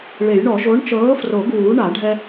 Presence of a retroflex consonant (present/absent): present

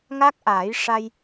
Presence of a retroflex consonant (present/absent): present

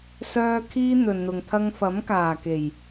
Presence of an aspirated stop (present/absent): present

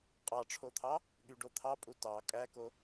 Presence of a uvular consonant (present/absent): present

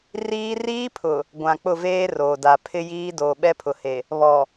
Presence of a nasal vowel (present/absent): present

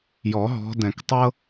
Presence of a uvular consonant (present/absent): absent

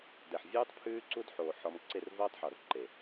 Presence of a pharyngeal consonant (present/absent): present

